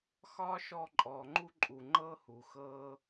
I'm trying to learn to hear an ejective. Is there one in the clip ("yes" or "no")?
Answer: yes